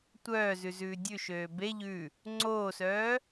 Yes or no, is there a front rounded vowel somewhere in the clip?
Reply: yes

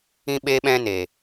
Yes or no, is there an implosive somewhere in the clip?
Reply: yes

